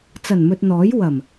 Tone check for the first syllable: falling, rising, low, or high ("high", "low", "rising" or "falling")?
low